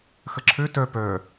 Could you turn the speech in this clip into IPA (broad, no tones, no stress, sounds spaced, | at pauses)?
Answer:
x ə ǁʰ ø t œ p œ